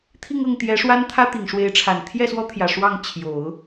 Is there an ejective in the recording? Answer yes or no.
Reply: no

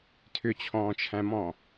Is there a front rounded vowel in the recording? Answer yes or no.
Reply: yes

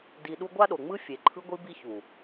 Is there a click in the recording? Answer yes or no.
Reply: yes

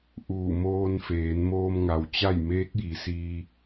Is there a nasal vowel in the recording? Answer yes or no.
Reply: no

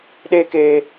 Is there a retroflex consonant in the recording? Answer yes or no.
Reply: no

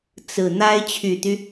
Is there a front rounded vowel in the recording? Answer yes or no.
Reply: yes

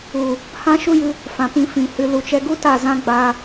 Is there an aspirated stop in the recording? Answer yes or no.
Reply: no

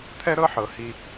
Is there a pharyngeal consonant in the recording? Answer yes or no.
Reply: yes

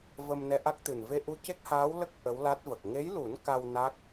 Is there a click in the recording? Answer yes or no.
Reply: no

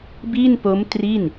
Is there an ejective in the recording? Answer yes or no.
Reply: no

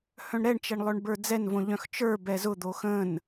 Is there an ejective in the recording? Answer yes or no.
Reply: no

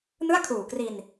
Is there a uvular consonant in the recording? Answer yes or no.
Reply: no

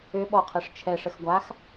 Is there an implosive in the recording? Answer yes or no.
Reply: yes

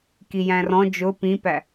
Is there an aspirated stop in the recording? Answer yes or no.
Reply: no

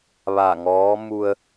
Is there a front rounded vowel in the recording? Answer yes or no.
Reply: no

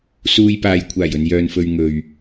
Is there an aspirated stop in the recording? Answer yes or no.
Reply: yes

